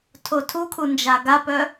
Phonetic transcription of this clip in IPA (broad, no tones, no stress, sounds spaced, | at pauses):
tʰ o tʰ u kʰ u n d͡ʒ a ɡ a p œ